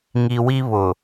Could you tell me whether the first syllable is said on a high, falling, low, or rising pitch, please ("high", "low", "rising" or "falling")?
low